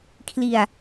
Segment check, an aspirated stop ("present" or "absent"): present